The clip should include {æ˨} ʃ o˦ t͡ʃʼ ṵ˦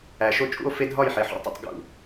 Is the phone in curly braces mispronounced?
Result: no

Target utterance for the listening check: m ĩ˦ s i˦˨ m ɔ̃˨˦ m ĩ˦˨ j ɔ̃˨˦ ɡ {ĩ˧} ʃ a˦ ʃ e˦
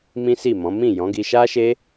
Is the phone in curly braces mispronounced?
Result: yes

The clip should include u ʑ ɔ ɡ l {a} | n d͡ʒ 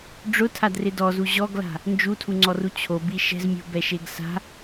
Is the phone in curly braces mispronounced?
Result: yes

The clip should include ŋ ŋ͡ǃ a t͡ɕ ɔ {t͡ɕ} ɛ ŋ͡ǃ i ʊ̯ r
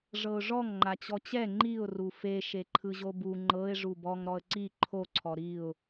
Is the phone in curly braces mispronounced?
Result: no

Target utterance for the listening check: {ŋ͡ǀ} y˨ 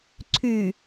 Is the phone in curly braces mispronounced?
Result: yes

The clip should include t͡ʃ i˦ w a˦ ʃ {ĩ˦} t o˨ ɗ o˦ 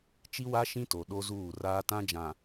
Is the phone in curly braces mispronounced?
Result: no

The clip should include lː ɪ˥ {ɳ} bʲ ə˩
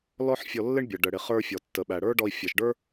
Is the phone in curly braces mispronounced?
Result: no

